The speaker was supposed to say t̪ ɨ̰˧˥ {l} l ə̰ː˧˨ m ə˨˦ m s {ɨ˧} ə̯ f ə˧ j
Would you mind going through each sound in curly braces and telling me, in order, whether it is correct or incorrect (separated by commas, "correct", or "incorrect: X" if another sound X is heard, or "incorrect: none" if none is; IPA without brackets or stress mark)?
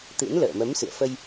incorrect: n, incorrect: ɨ̰˧˨